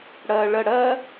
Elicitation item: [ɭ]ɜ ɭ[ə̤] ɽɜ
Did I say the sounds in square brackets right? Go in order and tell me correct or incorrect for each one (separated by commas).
incorrect, incorrect